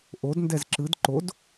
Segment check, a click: present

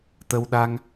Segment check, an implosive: present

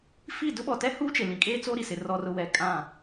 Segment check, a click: absent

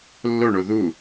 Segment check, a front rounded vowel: absent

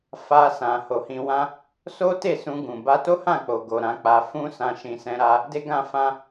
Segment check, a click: absent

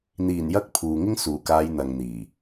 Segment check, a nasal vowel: absent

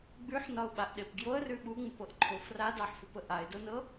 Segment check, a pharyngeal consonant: present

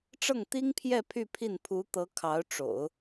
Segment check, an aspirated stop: present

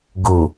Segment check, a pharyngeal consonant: absent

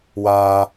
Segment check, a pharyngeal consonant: absent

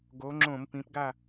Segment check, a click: present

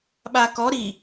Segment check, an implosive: present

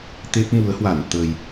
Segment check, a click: absent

